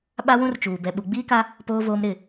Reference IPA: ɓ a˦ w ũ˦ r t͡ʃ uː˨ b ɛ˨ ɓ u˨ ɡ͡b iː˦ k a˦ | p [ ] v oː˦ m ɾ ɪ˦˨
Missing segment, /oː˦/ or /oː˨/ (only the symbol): oː˦